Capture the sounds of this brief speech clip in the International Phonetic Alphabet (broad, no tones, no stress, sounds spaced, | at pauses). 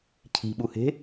cʰ i̤ ɓ u h e̤